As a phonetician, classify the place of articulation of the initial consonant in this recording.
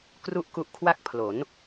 velar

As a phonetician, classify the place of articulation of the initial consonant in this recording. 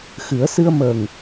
velar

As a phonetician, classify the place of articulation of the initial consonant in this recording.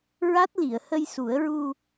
alveolar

